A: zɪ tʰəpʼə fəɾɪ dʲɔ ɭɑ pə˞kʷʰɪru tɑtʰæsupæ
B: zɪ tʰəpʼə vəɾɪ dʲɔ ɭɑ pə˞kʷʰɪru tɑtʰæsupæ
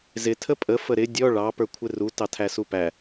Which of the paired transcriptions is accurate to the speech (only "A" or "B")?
A